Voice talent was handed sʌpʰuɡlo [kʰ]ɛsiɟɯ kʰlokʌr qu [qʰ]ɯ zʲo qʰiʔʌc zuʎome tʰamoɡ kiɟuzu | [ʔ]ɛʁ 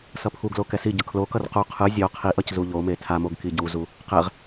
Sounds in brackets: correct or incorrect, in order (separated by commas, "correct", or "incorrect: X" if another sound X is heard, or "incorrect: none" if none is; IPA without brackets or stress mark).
incorrect: k, correct, incorrect: q